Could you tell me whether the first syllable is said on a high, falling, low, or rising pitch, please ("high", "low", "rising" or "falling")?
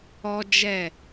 high